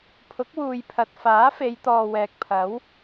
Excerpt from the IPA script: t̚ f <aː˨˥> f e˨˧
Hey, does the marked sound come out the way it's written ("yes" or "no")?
yes